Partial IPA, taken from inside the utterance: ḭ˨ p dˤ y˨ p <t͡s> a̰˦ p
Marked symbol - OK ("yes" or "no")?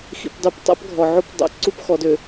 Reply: no